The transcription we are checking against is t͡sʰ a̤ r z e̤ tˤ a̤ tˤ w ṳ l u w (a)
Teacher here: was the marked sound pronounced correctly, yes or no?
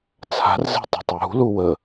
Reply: no